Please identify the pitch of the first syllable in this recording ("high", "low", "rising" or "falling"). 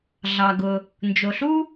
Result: low